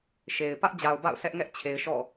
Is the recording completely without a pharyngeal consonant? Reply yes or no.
yes